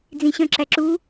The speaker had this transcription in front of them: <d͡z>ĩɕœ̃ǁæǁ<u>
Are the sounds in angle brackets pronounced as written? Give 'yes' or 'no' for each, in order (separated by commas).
yes, yes